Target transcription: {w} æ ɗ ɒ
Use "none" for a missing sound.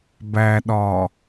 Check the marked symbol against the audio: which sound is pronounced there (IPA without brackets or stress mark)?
b